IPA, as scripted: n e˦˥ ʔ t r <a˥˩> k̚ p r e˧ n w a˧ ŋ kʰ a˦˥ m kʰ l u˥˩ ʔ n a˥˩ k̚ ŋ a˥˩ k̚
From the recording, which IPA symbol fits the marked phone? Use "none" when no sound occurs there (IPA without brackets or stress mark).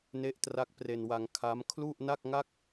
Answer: a˦˥